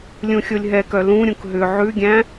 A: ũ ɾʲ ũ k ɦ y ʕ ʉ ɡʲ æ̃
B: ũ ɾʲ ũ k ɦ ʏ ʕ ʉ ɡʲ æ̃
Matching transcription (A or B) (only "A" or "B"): B